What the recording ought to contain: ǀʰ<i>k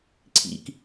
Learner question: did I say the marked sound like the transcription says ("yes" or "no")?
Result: no